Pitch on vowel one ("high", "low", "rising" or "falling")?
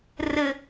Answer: low